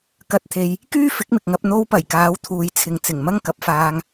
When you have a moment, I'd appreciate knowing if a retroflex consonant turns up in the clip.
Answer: no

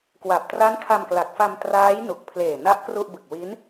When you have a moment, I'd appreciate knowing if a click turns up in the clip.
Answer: no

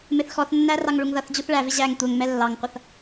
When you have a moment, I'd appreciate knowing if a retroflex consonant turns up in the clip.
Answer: yes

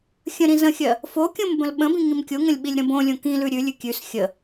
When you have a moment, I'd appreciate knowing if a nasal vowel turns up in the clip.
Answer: yes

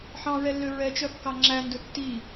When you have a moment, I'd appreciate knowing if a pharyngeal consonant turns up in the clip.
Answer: yes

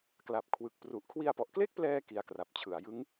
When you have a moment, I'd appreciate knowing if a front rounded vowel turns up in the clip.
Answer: no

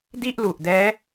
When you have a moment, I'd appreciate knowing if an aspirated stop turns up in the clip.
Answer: no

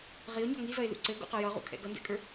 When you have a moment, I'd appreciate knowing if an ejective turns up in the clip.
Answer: yes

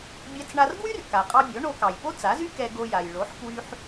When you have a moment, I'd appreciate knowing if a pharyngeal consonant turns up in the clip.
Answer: yes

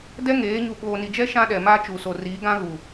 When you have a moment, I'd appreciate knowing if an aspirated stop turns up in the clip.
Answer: no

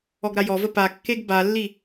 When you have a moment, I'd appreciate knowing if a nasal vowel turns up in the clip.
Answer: no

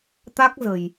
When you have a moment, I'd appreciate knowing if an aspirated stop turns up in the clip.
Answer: no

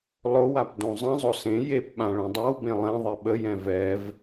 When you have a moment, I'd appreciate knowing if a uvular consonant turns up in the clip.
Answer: no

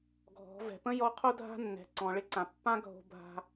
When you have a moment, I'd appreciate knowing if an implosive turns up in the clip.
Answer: no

